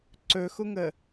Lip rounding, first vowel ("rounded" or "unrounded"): rounded